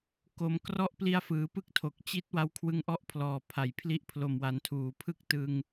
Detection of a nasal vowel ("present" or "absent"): absent